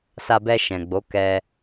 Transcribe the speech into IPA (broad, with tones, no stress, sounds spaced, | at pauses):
s a˧ b ɛ˧ ʃ ɛ̃˨ ɡ͡b o˨˦ k ɛ˧